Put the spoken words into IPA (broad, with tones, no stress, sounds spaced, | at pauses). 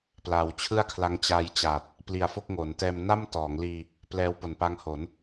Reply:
p l aː˩˦ w t͡ɕʰ ɯ˥˩ a̯ kʰ l a˦˥ ŋ t͡ɕ aː˧ j t͡ɕ a˨˩ t̚ | p l i˨˩ a̯ f o˥˩ k̚ ŋ o˩˦ n t ɛː˧ m n a˥˩ m t ɔː˩˦ ŋ l iː˧ | p l ɛː˦˥ w p o˨˩ n p a˦˥ ŋ h o˩˦ n